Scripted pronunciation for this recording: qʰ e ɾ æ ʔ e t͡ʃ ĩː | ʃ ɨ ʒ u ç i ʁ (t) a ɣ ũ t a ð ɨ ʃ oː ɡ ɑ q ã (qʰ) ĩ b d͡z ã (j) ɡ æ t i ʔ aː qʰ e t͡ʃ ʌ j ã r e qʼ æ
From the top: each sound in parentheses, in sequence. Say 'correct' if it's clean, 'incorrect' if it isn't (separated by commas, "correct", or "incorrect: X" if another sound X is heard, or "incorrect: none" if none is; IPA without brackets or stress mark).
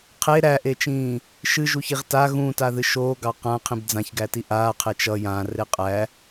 correct, correct, incorrect: ç